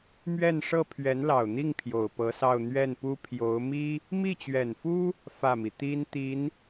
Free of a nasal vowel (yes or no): yes